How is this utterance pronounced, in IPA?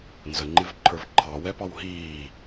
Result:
nzəŋ͡ǃɪvǃʰə˞v ǃʰɑwɛpɑw ɦiː

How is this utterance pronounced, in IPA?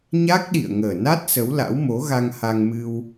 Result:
ɲa˦˥k̚ɗḭ˧˨ə̯ ŋəː˨˩na˦˥t̚ sə˨˦wla̰˧˥w mo˨˦ɣa˧ŋ ha˧ŋmɨ˧w

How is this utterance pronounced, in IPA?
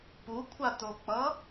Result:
pukʷʰatok͡pʌ

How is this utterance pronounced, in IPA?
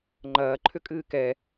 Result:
ŋ͡ǃɐːǃʰʏkʼɨː kɛ

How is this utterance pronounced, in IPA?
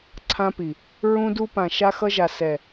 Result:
ǀʰã˧pi˨ | ɹũ˧du˧pã˨ ʃa˧xʌ˧ʒa˨ sɛ˨

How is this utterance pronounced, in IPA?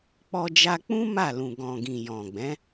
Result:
k͡pɔ˧d͡ʒa˧k͡pũ˦ ma˦˨lũ˨ɡɔ̃˨ ɡĩ˨jɔ̃˨ɡ͡bɛ̃˨˦

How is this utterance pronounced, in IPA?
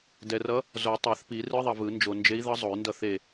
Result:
dɛ˨rʌ˧˥ | zo˨˩˦tˤa˨˩˦θpi˨˩˦ rɯ˧˥ðˤʌ˨vɯ˨˩˦ nd͡ʒo˨nd͡ʒe˧˥i̯ðʌ˧˥ zˤo˨˩˦y̯ndʌ˦˨θe˦˨

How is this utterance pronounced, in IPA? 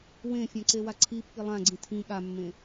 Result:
wẽfʲã ǀewaǀʰipːi lˠãɡ͡ǀĩ tʰĩ ɠamːẽ

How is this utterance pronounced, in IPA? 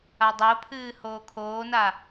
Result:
adˤopʰɨː hoːkʰoːna

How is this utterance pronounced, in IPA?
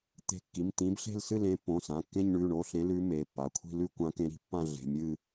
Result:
t̪e̤˨˦kːi˩˧˩mt̪ĩ˨˦bɬe̤˦˨l sɨ˦˨lẽ˨˦pːõ˩˧˩sã˩˧˩ kːẽ˦˨ɲɳʉ˩˧˩ɳo˩˧˩ɬẽ˨˦ lʉ˨˦ me˩˧˩pːa˩˧˩ kʷʰi̤˦˨lʉ˦˨kʷã˨˦ kẽ˨˦ɾi̤˨˦pːã˦˨ ɮe̤˩˧˩mʲɨ˦˨

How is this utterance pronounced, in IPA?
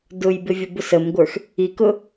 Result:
dʊjbɪvʲʊbʊs əmɡʷə˞x | ikʊ

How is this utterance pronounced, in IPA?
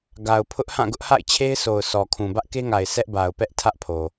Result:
ɡa˨ʊ̯pʰʊ˦ʔhã˦˨ ɡʊ˦ʔha̰˦˨ɪ̯t͡ɕʰe˦ɪ̯sʰo˨ʊ̯ sɔ˨kʰũ˨ bä˦ʔke˦ŋa˨ɪ̯ sɛ˦ʔba˨ʊ̯pɛ˦ʔ tʰä˦ʔpʰo˨

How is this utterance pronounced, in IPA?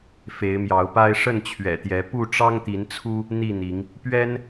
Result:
fe˨˦ɪ̯mjɑ˨˦ʊ̯pa˦ɪ̯ ʂə˥˨nt͡ɕʰɥɛ̰˨˩t̪jɛ˨˦ pu˥˨ʈ͡ʂɑ˦ŋt̪i˨˦nt͡sʰu˦ | n̪i˥˨n̪i˨˦ŋ | pɥɛ˦n

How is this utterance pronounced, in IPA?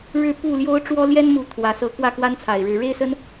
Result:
ɻɻ̩˥˨pu˥˨ljo˦ʊ̯ ʈ͡ʂwɔ˦ljɛ˦nmu˨˦ t̪ʰwä˨˩sɤ˨˦ kwä˥˨kwa˦nt͡sʰa˨˩ɪ̯ɻɻ̩˨˦ ɻe˦ɪ̯sə˦n

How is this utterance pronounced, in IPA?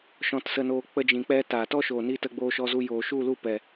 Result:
ʃɔ̃˧tsə˧noː˧ k͡pə˧d͡ʒĩ˨k͡pɛ˧ taː˨tɔ˦ʃoː˨niː˧ tə˧ɡ͡boː˧ʃɔ˧zu˧ joː˨ ʃu˦˨lu˦˨pɛ˨

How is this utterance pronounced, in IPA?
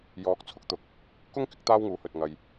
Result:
jɔː˨˥k̚t͡sʰʊ˧k̚t̪ʊ˨˥k̚ | kʊ˥ŋ kɪ˥k̚t̪aː˥wŋuː˨˥hɵ˨t̚ ŋɐ˨j

